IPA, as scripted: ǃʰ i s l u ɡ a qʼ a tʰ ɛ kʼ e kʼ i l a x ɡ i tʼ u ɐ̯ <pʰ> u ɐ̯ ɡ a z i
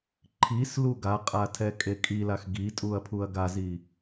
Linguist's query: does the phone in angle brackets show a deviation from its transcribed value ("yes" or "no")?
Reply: no